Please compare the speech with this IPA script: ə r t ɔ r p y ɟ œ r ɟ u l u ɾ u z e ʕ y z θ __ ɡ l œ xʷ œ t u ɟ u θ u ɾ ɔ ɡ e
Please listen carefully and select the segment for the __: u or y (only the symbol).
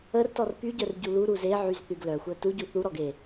y